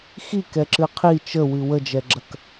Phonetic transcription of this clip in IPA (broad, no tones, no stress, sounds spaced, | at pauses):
x i k ɛ ǁ ɨ qʰ i t͡ʃ ə w ɨ w ə d͡ʒ ɛ ɡ͡ǁ ɐ k